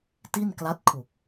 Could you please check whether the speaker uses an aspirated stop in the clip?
yes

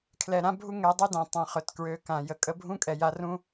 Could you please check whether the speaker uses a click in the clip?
no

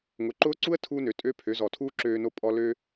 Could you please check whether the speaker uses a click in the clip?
yes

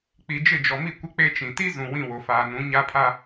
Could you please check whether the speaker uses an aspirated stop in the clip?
yes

